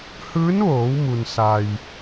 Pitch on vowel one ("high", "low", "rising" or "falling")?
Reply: rising